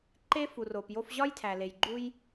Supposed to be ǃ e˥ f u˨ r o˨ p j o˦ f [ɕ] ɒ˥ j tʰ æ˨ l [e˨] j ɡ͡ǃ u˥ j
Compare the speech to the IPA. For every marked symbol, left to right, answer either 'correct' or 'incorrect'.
incorrect, correct

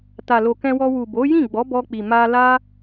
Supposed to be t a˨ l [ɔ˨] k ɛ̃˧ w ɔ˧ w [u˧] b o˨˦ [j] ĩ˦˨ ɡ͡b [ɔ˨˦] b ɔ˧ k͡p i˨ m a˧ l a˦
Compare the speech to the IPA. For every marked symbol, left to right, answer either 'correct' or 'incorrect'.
incorrect, incorrect, correct, correct

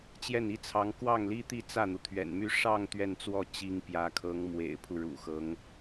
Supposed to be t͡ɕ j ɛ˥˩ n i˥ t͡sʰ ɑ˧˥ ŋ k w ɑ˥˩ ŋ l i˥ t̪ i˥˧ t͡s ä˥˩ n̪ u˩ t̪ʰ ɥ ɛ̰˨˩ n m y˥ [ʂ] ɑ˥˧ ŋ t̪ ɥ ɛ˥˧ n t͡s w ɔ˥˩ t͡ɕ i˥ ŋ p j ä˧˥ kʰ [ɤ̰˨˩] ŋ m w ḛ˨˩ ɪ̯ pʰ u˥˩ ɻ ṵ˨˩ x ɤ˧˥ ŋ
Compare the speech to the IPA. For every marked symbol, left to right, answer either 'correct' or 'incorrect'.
correct, incorrect

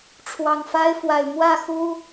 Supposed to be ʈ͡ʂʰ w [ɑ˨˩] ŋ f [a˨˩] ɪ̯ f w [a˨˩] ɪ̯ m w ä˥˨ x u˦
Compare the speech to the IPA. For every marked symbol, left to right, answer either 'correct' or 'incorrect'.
correct, incorrect, correct

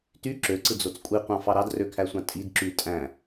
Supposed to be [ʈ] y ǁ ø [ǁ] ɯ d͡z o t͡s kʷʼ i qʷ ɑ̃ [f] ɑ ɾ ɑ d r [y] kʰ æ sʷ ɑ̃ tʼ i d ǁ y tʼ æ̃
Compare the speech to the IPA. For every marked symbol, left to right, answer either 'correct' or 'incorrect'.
incorrect, incorrect, correct, incorrect

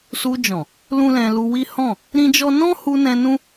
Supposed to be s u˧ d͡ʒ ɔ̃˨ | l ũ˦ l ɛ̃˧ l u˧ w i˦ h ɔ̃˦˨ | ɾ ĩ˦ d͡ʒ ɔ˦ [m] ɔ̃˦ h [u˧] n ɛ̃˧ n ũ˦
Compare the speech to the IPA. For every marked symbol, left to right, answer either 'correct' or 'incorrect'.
incorrect, correct

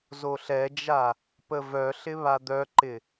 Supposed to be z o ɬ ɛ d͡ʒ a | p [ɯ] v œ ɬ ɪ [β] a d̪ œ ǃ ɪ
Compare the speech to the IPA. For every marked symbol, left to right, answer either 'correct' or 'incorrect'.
incorrect, correct

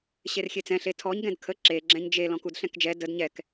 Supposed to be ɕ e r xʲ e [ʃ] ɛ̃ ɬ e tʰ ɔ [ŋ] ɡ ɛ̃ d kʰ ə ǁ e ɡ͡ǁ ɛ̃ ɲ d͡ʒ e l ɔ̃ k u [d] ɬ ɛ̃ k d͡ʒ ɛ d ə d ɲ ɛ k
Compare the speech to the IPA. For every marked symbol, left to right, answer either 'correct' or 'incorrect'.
incorrect, incorrect, correct

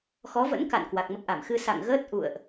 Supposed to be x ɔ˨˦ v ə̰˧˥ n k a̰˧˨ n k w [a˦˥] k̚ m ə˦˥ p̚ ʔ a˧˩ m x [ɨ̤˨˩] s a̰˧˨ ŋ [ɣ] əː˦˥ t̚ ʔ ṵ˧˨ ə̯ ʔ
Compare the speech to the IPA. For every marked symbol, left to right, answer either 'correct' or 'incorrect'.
incorrect, incorrect, correct

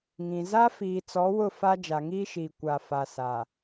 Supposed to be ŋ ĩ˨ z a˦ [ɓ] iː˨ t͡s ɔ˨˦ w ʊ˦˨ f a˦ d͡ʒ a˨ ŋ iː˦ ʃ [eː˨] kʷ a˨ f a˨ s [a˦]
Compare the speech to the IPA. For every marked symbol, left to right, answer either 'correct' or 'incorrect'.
incorrect, incorrect, incorrect

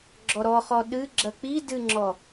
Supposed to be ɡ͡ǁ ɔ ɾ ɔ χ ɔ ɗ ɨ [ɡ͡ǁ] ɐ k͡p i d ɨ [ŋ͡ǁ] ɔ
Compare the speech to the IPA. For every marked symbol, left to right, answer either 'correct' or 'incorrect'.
correct, correct

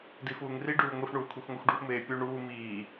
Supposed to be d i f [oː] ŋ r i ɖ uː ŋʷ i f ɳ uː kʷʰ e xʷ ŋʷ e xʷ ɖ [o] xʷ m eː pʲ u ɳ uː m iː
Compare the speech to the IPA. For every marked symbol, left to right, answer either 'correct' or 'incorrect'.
incorrect, incorrect

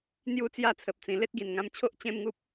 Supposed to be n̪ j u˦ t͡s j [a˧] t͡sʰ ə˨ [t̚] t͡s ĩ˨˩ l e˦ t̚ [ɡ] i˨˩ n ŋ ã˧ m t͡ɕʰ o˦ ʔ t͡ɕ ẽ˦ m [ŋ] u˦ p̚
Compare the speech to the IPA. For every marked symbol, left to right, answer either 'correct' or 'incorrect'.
incorrect, incorrect, correct, correct

